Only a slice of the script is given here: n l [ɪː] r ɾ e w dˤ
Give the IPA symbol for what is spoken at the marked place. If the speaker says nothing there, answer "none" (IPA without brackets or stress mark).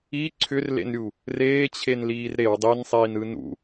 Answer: iː